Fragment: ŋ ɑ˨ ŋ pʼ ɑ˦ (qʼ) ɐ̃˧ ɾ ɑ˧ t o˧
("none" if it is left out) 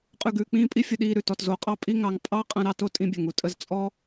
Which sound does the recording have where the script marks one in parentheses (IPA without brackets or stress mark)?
qʼ